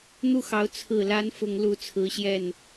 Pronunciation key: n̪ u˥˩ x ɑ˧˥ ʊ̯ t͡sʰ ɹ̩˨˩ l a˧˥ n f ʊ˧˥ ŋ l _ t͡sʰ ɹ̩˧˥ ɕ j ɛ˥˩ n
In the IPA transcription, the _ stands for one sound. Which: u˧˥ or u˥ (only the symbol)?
u˧˥